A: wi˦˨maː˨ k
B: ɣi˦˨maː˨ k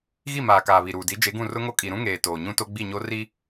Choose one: B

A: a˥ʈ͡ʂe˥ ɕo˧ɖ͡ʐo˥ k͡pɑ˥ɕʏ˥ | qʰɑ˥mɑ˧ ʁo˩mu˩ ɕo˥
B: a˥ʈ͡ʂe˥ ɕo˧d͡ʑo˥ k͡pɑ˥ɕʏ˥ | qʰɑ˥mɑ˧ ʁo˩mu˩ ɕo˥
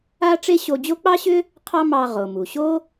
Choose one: B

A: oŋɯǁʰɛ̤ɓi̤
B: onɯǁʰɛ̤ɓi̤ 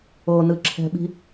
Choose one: B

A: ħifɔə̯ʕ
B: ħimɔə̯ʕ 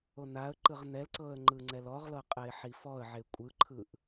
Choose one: A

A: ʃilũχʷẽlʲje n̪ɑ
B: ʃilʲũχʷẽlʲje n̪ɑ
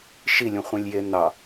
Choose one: B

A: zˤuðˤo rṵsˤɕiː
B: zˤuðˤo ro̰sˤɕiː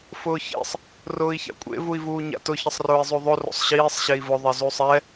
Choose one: B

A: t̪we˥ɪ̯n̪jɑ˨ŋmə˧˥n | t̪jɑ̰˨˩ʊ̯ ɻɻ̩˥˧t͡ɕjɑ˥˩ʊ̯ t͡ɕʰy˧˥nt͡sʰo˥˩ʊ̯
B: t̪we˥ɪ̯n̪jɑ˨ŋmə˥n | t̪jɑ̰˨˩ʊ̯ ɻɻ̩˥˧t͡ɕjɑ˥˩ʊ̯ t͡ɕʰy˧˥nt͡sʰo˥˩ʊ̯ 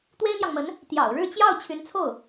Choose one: A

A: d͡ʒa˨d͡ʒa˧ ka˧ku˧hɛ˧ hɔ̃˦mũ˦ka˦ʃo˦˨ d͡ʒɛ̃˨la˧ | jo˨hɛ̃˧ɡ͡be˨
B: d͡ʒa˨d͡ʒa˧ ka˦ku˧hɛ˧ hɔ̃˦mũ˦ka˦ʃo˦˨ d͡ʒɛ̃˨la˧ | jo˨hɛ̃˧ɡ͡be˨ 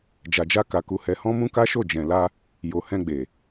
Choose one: A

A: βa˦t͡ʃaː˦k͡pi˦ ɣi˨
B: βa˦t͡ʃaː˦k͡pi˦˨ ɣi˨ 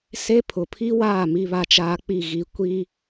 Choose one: B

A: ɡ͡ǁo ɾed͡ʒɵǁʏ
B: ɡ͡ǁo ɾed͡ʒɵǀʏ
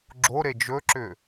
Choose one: A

